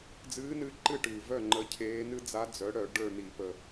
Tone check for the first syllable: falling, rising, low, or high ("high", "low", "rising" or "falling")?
rising